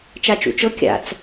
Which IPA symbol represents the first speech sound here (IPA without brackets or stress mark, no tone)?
t͡ʃ